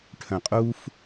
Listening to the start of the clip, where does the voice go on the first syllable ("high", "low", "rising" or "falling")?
low